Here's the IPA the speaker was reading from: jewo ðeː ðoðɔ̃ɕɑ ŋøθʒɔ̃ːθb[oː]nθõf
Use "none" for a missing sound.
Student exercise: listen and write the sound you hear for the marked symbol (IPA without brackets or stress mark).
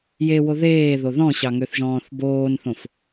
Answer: oː